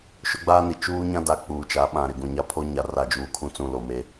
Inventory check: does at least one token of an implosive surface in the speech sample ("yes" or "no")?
yes